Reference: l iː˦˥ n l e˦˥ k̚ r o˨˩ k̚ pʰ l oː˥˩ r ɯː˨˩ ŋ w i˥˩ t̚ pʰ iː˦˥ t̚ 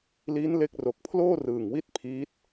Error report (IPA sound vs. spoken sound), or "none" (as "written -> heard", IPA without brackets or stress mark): none